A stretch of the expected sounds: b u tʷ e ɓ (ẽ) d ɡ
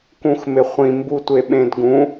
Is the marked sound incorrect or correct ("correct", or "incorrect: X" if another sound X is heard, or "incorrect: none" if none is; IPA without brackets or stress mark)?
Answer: correct